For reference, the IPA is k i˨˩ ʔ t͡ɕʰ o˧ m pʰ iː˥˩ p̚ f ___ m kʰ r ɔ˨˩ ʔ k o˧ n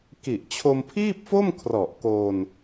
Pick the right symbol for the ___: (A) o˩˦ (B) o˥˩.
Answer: B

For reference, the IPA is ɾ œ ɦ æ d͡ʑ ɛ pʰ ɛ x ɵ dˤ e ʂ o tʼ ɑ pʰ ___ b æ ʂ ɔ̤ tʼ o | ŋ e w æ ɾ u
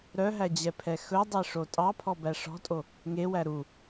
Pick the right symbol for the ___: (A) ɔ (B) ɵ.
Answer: A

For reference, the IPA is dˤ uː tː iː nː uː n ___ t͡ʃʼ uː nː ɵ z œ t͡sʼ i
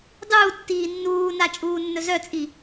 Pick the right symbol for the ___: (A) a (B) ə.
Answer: A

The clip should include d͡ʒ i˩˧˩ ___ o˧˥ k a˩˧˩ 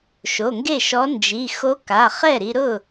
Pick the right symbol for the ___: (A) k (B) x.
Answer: B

